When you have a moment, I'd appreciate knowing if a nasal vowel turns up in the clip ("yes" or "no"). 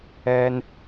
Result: no